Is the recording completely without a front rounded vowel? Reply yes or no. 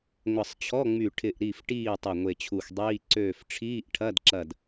no